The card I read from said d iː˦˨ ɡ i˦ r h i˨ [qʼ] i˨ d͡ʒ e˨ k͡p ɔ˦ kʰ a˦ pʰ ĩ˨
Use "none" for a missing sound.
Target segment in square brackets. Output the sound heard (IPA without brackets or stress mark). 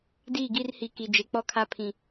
k